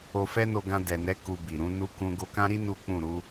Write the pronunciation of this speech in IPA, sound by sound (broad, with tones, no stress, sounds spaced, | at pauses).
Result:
o˧ f ɛ˦ n o˧ ɡ ã˧ d ɛ˨ n ɛ˨˦ k u˧ b i˨ ɾ ũ˨˦ n u˦ k ũ˦ ɡ o˧ k ã˦ ɾ i˦ n u˦ k͡p ũ˦˨ ɾ u˨˦